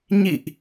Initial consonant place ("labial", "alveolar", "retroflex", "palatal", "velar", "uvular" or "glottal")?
palatal